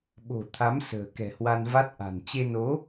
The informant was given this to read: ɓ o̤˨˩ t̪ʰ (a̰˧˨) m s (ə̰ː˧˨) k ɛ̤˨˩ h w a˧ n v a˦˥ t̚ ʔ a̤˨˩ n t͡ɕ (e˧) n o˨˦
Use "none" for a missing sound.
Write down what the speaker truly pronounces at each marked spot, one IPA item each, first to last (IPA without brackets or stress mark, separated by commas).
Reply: a˨˦, ə̤ː˨˩, e˧